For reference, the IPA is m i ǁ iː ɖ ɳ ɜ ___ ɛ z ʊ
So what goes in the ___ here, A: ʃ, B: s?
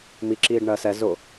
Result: B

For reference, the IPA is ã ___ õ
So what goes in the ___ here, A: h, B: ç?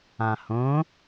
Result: A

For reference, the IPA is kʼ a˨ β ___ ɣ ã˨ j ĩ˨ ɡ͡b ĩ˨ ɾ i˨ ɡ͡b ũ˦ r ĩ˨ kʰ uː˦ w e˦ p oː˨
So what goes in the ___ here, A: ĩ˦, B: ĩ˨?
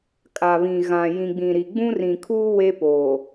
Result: B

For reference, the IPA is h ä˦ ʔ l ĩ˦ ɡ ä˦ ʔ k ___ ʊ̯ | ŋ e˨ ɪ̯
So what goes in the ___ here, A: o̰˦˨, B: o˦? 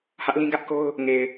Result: B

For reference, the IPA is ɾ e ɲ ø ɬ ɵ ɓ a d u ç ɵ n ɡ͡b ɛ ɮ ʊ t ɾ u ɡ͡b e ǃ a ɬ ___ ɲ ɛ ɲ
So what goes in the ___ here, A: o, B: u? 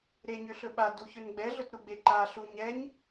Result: B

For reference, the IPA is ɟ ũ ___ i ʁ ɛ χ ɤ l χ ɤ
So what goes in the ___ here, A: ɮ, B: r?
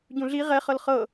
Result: A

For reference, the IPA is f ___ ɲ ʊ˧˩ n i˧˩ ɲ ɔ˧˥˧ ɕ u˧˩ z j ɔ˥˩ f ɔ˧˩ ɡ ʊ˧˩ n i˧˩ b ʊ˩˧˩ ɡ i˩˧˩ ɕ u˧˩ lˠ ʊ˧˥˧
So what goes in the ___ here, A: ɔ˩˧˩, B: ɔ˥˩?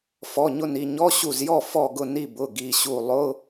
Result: A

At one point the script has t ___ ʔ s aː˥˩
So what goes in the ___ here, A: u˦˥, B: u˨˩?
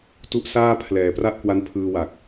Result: A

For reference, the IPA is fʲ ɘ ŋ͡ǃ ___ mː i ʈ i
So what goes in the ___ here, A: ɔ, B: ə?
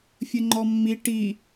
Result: A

